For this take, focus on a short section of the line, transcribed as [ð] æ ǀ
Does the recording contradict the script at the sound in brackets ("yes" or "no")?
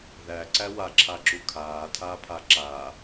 no